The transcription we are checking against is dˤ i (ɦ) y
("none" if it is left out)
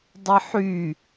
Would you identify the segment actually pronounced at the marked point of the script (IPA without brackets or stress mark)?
ħ